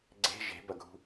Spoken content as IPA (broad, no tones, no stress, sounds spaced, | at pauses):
ɡ͡ǀ e̤ ʒ e̤ b ɐ ɡʱ ṳ